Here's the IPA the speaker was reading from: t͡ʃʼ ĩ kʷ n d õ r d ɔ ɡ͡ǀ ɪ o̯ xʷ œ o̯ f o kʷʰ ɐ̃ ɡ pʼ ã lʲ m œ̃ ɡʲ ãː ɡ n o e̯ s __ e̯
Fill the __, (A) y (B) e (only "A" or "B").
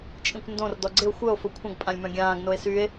A